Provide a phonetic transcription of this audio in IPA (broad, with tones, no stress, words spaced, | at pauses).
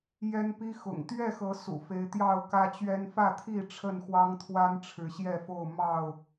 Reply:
jɛ˦npi˦ xʊ̰˨˩ŋ t̪ɥɛ˥˨xɤ˨˦ sṵ˨˩fe˨˦ɪ̯ t̪jɑ˥˨ʊ̯kä˦t͡ɕɥɛ˦n fä˥˨t̪ʰi˥˨ ʈ͡ʂʰə˥˨nxwɑ˦ŋt̪ʰwa˦n ʈ͡ʂʰɻ̩˨˦ɕjɛ˥˨fo˥˨ʊ̯ mɑ˥˨ʊ̯